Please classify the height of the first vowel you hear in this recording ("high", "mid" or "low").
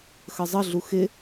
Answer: mid